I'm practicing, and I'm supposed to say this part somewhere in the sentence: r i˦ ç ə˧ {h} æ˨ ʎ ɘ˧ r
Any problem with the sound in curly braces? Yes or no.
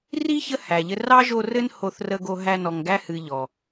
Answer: no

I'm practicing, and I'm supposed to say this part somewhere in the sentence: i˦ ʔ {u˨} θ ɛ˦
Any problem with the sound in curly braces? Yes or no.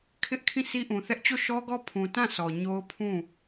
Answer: yes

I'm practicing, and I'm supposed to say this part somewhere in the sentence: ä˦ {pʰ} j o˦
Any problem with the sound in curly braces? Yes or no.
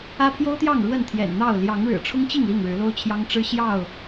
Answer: no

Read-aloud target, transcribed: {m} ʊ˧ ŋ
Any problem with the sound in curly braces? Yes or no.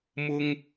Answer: no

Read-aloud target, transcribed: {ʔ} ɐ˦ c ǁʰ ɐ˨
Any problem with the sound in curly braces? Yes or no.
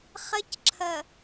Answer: yes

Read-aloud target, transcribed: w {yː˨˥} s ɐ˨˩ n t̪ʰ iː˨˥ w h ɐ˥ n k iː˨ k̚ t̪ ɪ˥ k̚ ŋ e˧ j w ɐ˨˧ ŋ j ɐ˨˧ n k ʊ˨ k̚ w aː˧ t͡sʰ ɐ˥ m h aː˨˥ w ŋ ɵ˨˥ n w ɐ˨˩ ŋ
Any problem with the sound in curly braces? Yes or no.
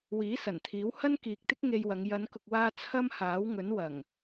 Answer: yes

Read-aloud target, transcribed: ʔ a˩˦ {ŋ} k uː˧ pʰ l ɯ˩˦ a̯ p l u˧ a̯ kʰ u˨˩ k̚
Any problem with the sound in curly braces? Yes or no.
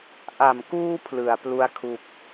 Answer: yes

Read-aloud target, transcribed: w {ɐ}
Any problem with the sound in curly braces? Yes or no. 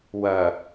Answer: no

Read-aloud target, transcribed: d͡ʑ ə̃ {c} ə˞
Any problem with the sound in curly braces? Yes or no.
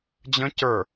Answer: no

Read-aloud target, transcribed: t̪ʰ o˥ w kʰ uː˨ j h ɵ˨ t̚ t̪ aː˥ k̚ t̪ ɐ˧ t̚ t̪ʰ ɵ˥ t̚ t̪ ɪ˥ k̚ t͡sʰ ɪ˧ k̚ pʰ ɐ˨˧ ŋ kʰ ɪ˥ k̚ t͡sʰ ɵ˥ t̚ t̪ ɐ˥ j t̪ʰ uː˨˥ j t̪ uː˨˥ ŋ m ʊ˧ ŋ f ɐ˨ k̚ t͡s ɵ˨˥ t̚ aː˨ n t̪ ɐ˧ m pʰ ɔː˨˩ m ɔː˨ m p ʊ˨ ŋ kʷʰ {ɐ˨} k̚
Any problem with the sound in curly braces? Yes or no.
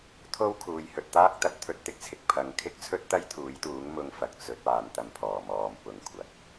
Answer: no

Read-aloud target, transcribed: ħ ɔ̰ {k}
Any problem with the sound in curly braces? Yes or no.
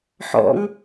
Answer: yes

